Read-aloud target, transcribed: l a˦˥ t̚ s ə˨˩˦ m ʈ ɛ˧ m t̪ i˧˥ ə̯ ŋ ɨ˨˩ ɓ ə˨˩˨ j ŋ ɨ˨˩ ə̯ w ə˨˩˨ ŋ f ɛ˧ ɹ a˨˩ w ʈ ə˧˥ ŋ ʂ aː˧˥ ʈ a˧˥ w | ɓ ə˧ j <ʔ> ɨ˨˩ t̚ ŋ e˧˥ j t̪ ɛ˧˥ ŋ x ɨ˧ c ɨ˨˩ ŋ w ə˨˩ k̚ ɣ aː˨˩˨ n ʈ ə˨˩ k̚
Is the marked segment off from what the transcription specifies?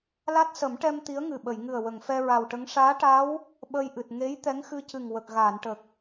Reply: no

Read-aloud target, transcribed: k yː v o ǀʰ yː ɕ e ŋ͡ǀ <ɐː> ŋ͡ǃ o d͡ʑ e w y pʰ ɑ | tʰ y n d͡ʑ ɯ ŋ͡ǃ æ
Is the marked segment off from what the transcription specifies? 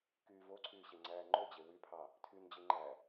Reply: yes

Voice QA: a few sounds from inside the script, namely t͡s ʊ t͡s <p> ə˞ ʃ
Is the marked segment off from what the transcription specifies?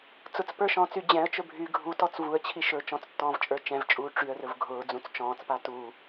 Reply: no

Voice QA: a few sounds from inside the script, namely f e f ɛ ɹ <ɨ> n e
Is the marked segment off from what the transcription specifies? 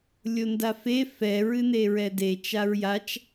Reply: no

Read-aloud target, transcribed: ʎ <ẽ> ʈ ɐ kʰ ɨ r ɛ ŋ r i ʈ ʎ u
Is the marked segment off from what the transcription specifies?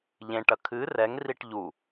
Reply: no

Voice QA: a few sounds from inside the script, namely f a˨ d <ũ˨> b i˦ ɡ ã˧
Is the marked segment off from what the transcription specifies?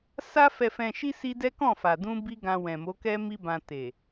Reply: yes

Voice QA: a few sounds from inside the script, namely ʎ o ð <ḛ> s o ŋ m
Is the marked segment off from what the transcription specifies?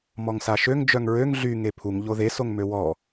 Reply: yes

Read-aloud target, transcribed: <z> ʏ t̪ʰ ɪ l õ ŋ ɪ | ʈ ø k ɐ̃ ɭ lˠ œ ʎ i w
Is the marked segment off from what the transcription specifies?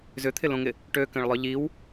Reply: no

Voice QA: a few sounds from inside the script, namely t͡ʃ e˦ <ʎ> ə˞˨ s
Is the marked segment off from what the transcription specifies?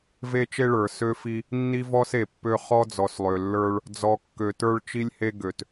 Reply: yes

